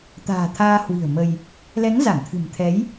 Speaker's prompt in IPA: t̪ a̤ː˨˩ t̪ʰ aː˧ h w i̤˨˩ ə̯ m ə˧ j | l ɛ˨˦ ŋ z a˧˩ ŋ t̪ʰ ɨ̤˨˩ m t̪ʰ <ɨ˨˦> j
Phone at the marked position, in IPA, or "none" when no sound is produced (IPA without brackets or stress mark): ɛ˨˦